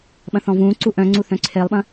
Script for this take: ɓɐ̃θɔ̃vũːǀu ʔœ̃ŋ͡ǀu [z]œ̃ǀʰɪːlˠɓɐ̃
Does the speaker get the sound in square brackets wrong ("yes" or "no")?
yes